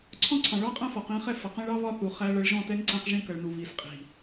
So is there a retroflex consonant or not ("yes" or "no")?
yes